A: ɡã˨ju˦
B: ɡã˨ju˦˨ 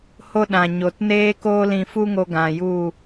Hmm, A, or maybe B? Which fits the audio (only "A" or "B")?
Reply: B